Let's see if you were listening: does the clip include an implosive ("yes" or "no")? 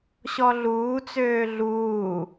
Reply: no